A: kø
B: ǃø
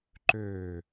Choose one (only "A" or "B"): B